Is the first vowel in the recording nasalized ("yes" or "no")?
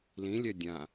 yes